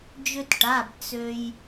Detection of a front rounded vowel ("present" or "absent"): present